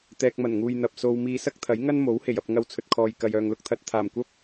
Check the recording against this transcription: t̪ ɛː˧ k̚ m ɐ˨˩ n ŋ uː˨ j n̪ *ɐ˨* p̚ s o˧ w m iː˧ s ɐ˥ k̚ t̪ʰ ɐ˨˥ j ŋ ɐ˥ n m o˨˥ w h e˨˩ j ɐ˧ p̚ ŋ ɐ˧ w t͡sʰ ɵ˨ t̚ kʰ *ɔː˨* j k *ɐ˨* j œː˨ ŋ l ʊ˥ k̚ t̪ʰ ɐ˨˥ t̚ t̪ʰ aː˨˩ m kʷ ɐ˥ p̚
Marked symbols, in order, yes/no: yes, yes, yes

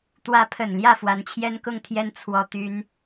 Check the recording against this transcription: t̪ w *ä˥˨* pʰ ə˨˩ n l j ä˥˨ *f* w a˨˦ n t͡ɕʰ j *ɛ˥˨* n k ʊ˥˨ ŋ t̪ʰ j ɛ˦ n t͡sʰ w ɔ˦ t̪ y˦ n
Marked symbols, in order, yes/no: no, yes, no

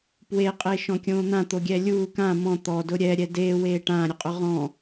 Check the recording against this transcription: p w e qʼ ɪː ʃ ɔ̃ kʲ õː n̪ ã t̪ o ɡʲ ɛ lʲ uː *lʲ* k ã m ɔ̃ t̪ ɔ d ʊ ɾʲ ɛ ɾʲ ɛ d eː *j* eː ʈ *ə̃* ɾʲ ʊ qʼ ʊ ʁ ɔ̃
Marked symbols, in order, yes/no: no, no, no

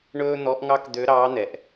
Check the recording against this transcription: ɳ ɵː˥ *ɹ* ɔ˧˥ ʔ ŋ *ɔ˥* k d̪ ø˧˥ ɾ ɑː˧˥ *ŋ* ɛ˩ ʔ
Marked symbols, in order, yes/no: no, no, no

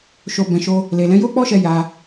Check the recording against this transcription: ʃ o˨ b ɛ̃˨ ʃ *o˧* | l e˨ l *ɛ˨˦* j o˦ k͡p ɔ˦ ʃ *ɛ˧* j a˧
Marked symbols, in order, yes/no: yes, no, yes

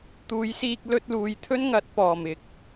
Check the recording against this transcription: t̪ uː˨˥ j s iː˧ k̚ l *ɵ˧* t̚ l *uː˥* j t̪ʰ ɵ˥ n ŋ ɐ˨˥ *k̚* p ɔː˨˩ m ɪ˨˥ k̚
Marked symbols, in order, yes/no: yes, no, no

